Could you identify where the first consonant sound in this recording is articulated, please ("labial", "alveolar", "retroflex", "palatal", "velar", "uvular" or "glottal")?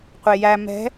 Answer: uvular